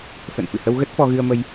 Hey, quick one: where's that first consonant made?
lips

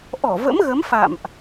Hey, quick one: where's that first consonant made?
throat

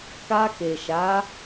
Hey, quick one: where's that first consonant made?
velum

